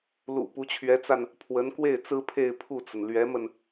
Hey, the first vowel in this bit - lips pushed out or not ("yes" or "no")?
yes